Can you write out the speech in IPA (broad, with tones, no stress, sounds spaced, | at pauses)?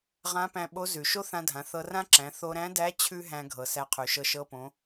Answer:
ʁ ã˧˥ p æ̃˧ ɓ o˧˥ z ʉ˩ ʃ o˥ θ ã˧ dʱ ã˩˧ θ ɤ˧ r ã˥ ǁ æ̃˩˧ θ o˧ ɾ æ̃˧˥ d æ˧˥ t͡ɕʰ ʉ˥ ɦ æ̃˧ ɡʱ ɤ˩ s æ˧ qʰ ʉ˩ ʃ ɤ˧ ʃ ɤ˧ p õ˩˧